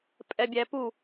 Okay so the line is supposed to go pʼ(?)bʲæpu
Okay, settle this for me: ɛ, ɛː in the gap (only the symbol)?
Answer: ɛ